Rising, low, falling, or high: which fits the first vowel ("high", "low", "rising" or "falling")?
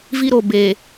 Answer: high